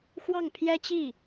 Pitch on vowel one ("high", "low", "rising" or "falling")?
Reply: falling